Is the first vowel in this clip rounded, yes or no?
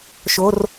yes